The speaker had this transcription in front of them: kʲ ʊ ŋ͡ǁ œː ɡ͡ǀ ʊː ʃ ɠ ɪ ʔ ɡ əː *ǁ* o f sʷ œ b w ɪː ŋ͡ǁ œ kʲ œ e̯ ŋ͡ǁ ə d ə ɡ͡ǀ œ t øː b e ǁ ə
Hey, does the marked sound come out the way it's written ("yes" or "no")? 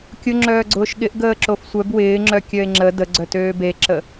yes